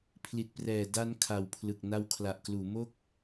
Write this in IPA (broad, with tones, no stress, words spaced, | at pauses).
pʰli˨˩t̚prɛː˨˩ da˧n kʰa˨˩wpʰlɯ˨˩k̚ na˧wkʰla˨˩ʔkluː˩˦mo˥˩k̚